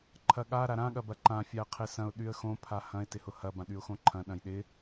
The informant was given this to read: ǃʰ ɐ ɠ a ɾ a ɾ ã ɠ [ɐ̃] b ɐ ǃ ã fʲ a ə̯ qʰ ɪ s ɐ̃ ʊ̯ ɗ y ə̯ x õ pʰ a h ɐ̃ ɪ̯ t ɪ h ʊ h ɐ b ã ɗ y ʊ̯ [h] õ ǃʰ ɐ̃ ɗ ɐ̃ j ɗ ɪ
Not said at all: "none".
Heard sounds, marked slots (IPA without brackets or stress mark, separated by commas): ɐ, x